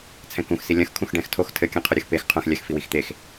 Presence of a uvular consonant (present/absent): present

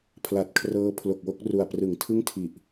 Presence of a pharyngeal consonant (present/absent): absent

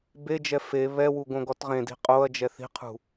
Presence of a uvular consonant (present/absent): present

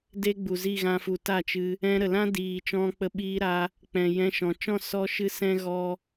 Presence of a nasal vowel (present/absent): present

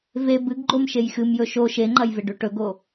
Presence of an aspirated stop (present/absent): absent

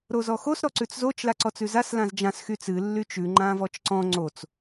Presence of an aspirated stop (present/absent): absent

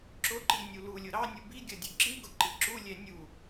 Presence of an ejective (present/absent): absent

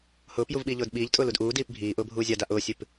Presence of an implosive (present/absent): present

